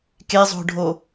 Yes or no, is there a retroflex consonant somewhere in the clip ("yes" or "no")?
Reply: yes